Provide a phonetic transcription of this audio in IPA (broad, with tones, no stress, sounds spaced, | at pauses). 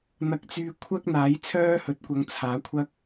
n̪ ɐ˧ k̚ t͡s yː˧ kʷʰ ɐ˥ k̚ n̪ aː˨˥ j t͡sʰ œː˥ h ɵ˨ t̚ kʷ ɐ˨˧ ŋ t͡sʰ aː˨˥ kʷʰ ɐ˥ k̚